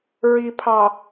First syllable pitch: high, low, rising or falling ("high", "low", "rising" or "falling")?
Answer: low